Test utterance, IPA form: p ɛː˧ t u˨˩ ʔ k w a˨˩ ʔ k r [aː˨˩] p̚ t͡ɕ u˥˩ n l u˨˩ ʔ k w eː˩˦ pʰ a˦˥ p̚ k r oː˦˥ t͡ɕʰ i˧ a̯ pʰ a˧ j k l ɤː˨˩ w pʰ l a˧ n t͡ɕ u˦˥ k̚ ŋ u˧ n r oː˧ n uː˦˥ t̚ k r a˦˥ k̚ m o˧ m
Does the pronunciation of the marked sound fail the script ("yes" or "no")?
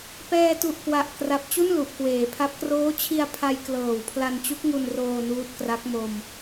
yes